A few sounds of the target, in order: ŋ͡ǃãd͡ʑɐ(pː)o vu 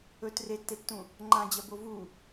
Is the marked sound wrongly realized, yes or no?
yes